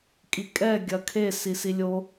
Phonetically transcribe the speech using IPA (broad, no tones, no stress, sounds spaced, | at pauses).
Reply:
kʼ i kʼ ɛ ɡʲ ɐ kʰ e s i s i lʲ o